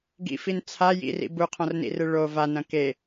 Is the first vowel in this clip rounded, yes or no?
no